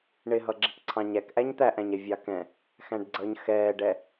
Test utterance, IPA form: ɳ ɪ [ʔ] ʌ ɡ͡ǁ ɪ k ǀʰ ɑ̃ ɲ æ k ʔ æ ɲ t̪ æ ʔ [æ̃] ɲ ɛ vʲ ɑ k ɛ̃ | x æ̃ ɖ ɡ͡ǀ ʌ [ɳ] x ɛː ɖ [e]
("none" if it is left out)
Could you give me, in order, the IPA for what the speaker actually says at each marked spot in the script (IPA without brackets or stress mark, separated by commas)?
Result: ɦ, æ̃, ɲ, ɛ